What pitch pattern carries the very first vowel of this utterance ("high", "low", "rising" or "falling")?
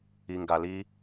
low